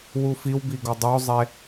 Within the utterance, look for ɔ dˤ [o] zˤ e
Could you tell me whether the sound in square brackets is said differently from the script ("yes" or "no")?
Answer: no